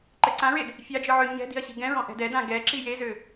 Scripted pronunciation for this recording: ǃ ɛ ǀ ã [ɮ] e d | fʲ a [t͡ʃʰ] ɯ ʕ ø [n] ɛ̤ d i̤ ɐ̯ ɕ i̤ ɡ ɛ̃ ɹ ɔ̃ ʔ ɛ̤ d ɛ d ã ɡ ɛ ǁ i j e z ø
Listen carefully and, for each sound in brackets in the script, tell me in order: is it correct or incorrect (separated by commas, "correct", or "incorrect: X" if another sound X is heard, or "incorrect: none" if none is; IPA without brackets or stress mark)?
incorrect: ɹ, incorrect: d͡ʒ, incorrect: ɲ